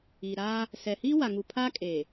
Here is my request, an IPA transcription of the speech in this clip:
iː˨ ɾ aː˦ | s ɛ˨ h iː˦ w a˨ ŋ u˨ pʰ aː˦ kʼ eː˨

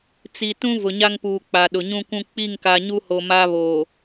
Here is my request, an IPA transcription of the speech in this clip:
t͡s i˨ t ũ˦ v ʊ˨ ɲ a˦ ŋ p uː˨ k͡p a˨ ɗ ʊ˨ ɲ ũ˦ kʷ ũ˦ k͡p i˦˨ ŋ k a˨ ɲ u˦ h o˨ m a˦ β o˨

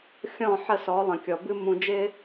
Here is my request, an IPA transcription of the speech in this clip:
xʲ ɔ̃˦˨ ħ ə˦˨ s ɔ˨˦ lˠ ə̃˨ kʲ ɔ˨ b ɨ˦ m ũ˨ d͡ʒ ɪ˦

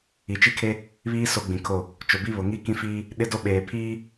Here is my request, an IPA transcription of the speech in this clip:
i˨ t͡ʃ i˦ kʰ e˦ | β iː˦ s o˦ ɡ͡b ĩ˨ kʰ o˦˨ | t͡ʃ ʊ˨ b i˦ β ʊ˨ ŋ i˦ k ĩ˦ f iː˦ | ɗ ɪ˦ d o˦ ɓ eː˨ pʰ iː˦

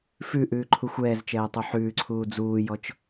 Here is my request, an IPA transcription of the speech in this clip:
f ʉ ʔ ʉː ǃʰ u xʷ ɛː z t͡ʃ ɛː tˤ u ħ ʉː ǀʰ uː d͡z uː j ɔ t͡ʃ

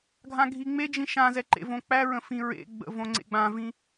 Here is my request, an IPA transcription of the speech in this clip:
ɡʱ ã ɡʱ i ŋ͡m e d͡ʒ ĩ ʃ ã z ɛ ǃ ḛ v õ k͡p æ ɹ ə̃ f ĩ ɹ ḛ ɡ͡b ə̰ v õ ŋ͡ǀ ḛ ɡ͡b ã v ĩ

